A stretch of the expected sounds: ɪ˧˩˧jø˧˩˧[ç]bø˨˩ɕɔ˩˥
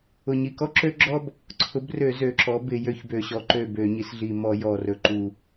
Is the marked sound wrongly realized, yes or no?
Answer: no